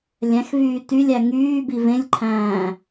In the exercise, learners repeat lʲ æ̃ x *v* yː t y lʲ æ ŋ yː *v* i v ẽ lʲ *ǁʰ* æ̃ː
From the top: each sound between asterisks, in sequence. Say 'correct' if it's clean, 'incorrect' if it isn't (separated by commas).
correct, incorrect, incorrect